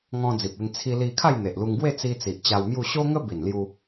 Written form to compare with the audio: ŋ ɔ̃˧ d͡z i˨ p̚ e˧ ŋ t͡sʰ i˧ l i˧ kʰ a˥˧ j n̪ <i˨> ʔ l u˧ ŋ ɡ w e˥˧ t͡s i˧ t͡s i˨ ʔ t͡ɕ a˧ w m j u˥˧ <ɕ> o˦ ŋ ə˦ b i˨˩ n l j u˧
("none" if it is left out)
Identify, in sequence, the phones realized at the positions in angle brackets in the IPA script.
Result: e˨, ɕ

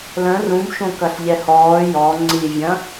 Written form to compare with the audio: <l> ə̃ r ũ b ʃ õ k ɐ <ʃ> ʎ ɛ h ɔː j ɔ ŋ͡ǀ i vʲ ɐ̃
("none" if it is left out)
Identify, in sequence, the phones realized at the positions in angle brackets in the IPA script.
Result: l, ɬ

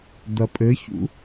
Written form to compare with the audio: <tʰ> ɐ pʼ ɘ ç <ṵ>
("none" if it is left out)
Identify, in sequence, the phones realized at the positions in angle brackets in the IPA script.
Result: d̪, ṵ

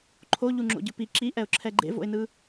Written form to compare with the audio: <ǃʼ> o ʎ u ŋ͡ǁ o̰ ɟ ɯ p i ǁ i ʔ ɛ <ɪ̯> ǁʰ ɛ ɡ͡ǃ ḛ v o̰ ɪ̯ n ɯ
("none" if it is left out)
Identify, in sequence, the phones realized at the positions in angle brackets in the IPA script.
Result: ǃʰ, ʊ̯

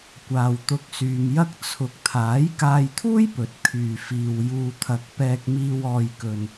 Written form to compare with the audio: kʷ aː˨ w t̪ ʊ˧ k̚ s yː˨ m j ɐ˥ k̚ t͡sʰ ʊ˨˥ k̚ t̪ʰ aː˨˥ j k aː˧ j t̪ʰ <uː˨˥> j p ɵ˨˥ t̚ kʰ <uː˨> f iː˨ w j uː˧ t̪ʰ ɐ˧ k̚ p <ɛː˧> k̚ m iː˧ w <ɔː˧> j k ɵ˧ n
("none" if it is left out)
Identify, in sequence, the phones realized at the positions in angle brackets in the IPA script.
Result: uː˥, yː˨, ɛː˧, ɔː˧

